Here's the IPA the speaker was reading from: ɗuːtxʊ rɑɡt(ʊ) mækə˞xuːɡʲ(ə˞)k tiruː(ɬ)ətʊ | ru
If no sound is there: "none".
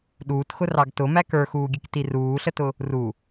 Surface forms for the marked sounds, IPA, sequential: ʊ, ə, ɬ

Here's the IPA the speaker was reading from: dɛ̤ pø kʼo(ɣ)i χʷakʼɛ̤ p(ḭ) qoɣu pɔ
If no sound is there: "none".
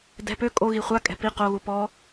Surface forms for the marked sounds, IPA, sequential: ɣ, i

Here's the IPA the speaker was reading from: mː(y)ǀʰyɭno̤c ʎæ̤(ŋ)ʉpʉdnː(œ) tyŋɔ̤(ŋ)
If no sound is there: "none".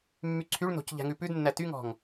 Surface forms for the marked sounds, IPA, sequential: y, ŋ, æ, ŋ

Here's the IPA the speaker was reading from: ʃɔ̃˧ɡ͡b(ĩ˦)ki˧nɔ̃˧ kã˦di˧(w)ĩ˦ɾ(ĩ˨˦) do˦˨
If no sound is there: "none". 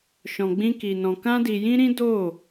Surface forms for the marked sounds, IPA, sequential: ĩ˦, j, ĩ˦

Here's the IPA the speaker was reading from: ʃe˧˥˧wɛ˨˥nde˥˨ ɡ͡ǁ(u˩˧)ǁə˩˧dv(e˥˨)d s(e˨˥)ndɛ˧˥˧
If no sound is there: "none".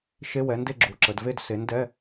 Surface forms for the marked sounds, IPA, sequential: u˩˧, e˥˨, e˨˥

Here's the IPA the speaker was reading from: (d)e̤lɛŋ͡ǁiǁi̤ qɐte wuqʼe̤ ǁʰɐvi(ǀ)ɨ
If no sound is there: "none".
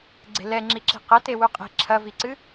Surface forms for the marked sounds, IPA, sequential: ɡ͡ǀ, ǀ

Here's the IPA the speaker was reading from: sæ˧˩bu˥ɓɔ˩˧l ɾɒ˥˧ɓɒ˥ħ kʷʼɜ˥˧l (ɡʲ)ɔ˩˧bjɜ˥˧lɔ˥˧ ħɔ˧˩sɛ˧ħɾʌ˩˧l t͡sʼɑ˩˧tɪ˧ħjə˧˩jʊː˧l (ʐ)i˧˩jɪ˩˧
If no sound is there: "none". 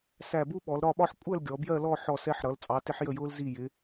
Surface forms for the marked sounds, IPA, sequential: ɡʲ, z

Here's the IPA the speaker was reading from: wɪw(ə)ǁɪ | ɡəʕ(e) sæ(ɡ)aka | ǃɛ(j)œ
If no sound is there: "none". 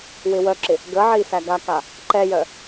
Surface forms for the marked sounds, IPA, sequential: œ, i, ɡ, j

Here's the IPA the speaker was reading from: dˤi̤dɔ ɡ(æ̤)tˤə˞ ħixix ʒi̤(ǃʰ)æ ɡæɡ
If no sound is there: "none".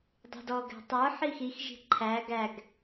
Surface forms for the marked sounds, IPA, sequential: æ̤, ǃʰ

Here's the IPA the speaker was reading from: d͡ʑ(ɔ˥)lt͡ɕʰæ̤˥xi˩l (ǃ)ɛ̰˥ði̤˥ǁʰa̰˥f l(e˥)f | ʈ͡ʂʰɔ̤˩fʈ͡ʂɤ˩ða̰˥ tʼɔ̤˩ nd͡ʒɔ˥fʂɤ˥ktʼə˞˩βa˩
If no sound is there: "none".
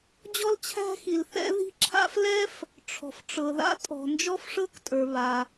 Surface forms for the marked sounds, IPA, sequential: ɔ˥, θ, ɛ˥

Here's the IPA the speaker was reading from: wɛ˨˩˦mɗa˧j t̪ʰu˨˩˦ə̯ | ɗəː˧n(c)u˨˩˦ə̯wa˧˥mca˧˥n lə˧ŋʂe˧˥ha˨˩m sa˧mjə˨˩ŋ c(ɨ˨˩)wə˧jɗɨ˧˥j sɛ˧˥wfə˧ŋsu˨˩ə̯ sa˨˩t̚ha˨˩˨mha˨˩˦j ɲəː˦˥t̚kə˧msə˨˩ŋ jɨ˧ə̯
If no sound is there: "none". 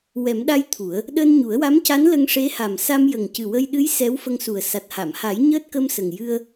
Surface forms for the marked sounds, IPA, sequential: ɲ, ɨ˨˩

